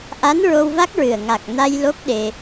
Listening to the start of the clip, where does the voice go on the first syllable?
rising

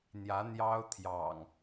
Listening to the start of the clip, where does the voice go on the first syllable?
rising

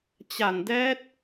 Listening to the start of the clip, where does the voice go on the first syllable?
low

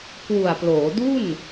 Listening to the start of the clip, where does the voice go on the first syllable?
low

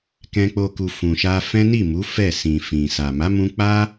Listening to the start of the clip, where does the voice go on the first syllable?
high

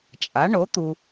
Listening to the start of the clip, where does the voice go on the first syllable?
rising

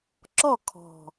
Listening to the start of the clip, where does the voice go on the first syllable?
falling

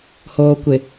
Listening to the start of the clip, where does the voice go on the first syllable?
low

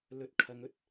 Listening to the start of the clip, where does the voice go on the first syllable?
rising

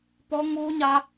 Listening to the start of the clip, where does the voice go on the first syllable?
high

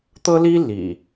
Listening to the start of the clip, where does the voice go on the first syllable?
high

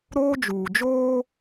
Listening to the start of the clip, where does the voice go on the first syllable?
high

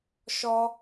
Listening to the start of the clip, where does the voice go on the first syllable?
high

